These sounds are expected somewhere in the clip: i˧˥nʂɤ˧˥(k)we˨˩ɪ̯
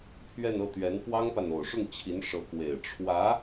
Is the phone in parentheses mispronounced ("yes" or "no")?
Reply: no